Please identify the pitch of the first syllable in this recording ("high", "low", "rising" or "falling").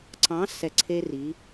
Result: rising